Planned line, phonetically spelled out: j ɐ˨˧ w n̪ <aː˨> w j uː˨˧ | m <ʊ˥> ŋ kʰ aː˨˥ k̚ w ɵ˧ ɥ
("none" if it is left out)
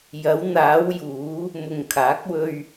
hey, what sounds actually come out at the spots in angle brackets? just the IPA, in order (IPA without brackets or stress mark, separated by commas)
aː˨˧, ʊ˨